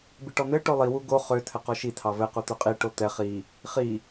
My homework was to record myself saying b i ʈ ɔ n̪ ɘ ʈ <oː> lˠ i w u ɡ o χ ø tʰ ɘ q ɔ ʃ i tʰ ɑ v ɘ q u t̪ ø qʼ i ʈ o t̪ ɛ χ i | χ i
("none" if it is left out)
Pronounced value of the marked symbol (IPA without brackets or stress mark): o